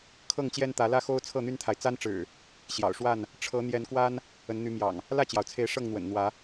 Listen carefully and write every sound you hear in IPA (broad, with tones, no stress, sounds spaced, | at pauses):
kʰ ɤ˥˨ ŋ t͡ɕ j ɛ˦ n t̪ ä˨˦ l ä˦ x o˦ ʊ̯ t͡sʰ ɤ˥˨ n̪ y˦ n t̪ʰ a˨ ɪ̯ t͡s a˦ n ʈ͡ʂ ɻ̩˨˩ | ɕ j ɑ̰˨˩ ʊ̯ ʂ w a˥˨ n | ʈ͡ʂʰ ɤ˨˦ n̪ j ɛ˨˦ n k w a˦ n | ə˨˦ n n̪ y˨˦ m j ɑ̰˨˩ ŋ | l ä˥˨ t͡ɕ j ɑ˩ ʊ̯ t͡sʰ e˨˦ ɪ̯ ʂ ɤ˥˨ ŋ n̪ w ə̰˨˩ n n̪ w ä˨˦